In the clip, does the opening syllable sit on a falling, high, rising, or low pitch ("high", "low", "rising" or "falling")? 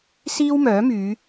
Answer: high